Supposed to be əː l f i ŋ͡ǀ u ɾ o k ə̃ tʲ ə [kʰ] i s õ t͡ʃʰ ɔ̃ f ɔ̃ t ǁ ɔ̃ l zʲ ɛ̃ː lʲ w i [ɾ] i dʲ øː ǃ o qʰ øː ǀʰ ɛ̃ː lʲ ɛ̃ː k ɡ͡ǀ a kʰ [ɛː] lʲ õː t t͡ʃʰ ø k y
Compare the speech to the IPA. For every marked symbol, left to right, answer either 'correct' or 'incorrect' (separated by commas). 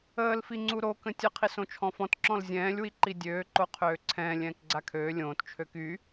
incorrect, incorrect, incorrect